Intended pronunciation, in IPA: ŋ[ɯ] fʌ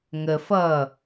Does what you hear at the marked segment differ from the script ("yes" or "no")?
yes